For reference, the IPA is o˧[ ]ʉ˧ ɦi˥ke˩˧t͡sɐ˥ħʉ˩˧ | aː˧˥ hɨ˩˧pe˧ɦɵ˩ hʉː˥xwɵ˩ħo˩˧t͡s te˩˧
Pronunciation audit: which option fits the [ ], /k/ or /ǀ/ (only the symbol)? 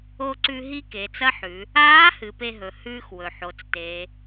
ǀ